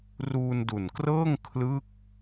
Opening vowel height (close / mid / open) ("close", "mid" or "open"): close